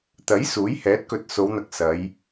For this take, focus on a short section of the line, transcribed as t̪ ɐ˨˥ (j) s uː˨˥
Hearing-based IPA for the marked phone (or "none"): j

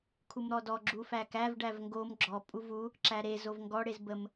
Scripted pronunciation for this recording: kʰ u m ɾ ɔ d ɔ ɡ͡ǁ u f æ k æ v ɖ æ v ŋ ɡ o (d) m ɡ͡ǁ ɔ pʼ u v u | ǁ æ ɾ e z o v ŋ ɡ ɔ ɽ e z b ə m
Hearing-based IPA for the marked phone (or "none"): none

